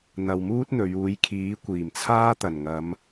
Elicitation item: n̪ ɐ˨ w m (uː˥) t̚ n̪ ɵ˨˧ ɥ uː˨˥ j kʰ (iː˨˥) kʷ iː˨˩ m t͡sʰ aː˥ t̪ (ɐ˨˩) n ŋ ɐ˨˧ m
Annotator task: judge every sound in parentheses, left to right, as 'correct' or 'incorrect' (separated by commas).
correct, correct, correct